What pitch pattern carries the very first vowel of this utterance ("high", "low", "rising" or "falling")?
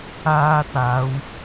high